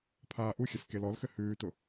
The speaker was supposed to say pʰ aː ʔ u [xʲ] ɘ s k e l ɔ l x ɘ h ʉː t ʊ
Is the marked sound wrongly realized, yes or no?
no